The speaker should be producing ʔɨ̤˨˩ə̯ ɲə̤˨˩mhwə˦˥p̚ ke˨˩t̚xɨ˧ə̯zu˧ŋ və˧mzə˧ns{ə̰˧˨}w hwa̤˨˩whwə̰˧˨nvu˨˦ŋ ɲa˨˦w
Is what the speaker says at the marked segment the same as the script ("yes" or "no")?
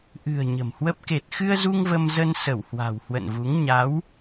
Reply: no